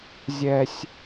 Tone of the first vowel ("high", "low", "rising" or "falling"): high